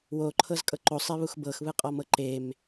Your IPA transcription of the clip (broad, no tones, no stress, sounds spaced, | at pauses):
w o ǃʰ ɤ z kʼ ɤ ǃ o sˤ e β u x b ɤ x β ɯ qʼ ɔ m ɤ ǃ e m